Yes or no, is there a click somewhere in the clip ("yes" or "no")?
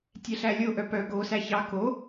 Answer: no